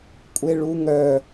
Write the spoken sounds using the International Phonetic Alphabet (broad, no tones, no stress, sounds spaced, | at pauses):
kʷʼ e ɭ u ŋ œ